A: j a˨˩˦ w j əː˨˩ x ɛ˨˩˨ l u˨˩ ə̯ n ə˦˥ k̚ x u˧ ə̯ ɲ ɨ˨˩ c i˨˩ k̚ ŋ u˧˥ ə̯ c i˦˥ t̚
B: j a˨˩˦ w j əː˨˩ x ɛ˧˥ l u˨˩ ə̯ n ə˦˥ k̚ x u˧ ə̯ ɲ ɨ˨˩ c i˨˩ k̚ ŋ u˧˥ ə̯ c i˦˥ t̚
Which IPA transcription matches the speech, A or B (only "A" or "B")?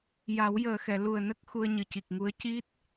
A